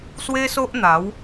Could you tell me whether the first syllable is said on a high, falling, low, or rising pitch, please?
high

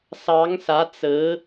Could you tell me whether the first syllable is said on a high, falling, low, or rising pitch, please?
rising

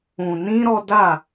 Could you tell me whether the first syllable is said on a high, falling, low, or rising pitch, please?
low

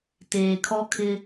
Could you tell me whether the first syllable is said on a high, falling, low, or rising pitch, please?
low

